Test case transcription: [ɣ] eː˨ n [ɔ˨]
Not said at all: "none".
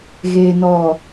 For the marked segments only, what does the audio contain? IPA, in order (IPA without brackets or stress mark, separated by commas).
ɣ, ɔ˨